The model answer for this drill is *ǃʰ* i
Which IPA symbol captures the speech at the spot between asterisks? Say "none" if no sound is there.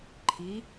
ǃʰ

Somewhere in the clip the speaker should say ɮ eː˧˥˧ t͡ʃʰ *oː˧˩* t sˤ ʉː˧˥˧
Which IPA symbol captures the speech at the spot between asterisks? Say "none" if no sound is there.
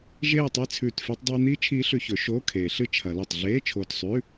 oː˧˩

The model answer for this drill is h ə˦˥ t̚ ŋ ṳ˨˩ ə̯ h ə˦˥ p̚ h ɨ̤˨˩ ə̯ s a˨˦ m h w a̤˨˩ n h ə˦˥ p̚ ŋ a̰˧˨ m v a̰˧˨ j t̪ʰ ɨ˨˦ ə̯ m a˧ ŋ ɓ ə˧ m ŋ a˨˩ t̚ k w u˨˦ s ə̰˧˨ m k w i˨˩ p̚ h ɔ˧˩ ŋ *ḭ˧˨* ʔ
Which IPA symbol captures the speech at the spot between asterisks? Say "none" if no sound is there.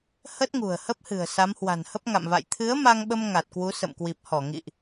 ḭ˧˨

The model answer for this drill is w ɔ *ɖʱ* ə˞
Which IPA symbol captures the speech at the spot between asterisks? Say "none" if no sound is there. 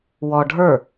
ɖʱ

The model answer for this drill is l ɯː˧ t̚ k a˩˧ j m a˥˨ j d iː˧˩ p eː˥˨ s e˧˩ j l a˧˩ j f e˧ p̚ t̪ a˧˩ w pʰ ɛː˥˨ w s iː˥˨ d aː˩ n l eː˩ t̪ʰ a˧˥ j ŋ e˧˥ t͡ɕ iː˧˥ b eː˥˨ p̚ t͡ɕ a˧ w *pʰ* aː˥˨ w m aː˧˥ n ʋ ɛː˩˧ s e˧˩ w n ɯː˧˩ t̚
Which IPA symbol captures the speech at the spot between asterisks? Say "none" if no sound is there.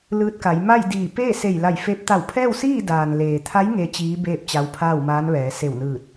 pʰ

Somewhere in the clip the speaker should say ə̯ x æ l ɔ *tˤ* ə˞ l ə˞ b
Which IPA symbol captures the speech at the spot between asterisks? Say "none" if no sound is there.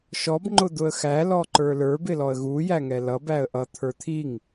ǃ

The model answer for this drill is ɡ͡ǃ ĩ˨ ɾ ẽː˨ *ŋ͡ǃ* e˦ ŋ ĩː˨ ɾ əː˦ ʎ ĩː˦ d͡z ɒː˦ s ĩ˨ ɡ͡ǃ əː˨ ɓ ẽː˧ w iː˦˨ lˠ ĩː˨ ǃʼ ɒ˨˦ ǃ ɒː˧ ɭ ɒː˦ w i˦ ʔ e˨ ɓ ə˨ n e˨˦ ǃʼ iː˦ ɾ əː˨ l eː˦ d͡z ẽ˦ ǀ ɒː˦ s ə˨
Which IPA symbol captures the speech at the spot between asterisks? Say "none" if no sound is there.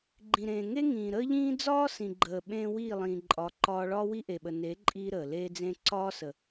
ŋ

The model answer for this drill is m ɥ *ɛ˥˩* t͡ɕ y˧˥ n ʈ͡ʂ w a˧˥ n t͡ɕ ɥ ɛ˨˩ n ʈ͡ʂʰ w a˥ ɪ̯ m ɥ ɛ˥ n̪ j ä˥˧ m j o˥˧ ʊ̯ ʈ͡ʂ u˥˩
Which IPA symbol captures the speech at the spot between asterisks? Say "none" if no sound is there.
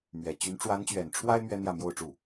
ɛ˨˩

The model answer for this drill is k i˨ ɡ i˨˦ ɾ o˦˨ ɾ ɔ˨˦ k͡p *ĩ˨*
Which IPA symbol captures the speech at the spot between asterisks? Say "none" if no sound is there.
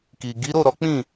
ĩ˦˨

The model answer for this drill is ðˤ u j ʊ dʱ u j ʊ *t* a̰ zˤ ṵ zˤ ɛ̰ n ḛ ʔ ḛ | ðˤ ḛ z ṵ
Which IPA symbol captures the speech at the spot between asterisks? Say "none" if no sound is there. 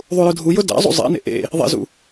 d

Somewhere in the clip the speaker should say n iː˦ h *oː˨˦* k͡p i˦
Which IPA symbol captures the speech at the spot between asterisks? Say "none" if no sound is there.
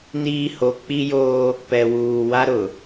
o˨˦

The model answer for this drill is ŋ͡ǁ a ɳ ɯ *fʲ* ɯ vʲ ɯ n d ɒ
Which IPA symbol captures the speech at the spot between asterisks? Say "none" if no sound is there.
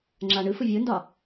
f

